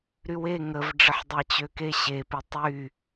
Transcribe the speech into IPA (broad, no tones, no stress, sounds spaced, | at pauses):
ɾ y w e ŋ ə v ɖ͡ʐ ə ħ dˤ e t͡ɕ ø k e ɕ e p i tˤ y